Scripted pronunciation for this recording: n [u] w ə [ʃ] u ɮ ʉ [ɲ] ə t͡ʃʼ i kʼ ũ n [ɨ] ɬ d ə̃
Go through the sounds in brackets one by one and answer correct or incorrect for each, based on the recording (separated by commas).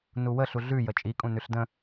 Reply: correct, incorrect, incorrect, incorrect